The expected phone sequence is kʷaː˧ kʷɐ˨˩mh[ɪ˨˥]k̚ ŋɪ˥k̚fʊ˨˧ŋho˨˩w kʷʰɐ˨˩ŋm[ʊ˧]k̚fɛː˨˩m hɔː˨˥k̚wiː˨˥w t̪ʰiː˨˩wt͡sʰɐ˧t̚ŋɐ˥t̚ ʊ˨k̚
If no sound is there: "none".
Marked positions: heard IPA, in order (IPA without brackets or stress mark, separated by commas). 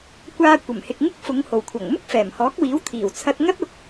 ɪ˨, ʊ˥